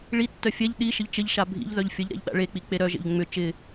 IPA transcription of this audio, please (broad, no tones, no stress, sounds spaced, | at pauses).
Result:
ɭ i tː œ fʲ ɛ ʎ ɗ i ʃ ɪ ʎ t͡ʃ ɪ ʎ ʃ a bʱ ḭ ʎ ð œ ʎ fʲ ə ʎ ɾ ɛ̰ ʎ ɗ a̰ ɭ e k͡p i k͡p e ɾ œ ʒ ḛ ʎ ŋ͡m ʏ t͡ʃ ɪ